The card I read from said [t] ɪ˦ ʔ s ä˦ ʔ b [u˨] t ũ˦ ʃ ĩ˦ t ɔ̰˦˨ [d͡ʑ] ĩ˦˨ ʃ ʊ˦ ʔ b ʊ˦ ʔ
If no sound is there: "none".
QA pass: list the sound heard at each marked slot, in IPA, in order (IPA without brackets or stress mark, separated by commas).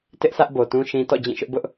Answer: t, o˨, d͡ʑ